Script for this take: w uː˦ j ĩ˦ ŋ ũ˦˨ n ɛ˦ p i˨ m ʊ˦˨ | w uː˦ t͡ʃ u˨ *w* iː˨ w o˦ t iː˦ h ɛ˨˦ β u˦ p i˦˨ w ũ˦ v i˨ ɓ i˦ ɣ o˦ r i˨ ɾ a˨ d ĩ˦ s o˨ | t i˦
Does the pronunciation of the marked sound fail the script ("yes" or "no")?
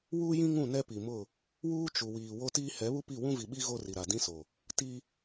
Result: no